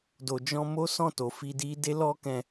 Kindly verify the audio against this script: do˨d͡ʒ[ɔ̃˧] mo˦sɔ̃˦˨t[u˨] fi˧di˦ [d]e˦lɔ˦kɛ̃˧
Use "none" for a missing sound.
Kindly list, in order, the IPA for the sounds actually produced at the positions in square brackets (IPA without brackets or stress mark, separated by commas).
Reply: ɔ̃˧, o˨, d